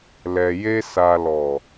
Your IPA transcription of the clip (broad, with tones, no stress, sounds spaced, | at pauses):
l ɛ˨ j e˧ s a˨ l ɔ˨